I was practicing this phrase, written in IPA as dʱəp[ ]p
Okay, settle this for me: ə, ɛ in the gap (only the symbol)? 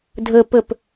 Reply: ə